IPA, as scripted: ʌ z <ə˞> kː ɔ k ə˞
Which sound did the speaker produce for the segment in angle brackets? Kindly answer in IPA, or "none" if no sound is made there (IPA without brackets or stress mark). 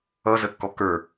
ə